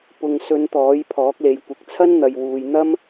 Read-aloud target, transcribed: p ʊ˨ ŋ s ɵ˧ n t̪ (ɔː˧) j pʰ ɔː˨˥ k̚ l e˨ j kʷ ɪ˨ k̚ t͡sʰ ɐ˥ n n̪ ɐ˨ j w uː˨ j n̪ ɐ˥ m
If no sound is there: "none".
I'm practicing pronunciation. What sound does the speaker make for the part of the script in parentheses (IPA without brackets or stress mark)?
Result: ɔː˨˥